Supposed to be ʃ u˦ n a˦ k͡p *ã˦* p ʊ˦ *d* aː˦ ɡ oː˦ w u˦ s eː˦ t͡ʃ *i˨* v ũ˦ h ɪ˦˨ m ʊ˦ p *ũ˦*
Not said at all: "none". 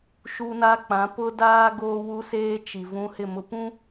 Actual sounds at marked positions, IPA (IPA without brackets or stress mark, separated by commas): ã˨˦, d, i˨, ũ˦